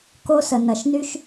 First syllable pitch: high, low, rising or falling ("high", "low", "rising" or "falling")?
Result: high